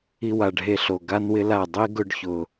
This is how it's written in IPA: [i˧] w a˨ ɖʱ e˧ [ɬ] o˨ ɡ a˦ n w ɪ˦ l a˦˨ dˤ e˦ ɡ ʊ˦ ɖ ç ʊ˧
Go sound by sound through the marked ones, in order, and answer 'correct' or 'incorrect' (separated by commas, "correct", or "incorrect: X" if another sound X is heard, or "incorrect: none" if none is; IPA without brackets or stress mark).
correct, correct